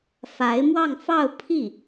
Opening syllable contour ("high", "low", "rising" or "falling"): rising